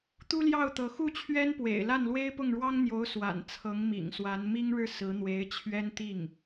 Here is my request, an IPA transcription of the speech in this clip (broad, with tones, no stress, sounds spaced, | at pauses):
t̪ u˥ l j ɑ˥˩ ʊ̯ t̪ ɤ˧˥ x u˥˩ t͡ɕʰ ɥ ɛ˥ n p w ḛ˨˩ ɪ̯ l a˥˩ n l w e˥ ɪ̯ p ʊ˥˩ ŋ ɻ w ɑ˥ ŋ n̪ j o˧˥ ʊ̯ s w a̰˨˩ n t͡sʰ ɤ˧˥ ŋ m ḭ˨˩ ŋ s w a˧˥ n m i˥ ŋ ɻ ɻ̩˥˩ s ɹ̩˧˥ n̪ w e˧˥ ɪ̯ t͡ɕʰ ɥ ɛ˥ n t̪ i˥˩ ŋ